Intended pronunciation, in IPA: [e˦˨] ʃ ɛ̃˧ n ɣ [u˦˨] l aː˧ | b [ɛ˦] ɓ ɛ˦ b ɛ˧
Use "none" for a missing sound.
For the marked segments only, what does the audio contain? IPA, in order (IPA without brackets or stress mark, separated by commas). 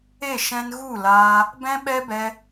e˦˨, u˦˨, ɛ̃˦